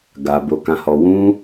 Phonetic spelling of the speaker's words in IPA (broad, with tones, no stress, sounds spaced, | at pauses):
ɡ a˨ b o˧ k ã˧ h ɔ˧ w ũ˦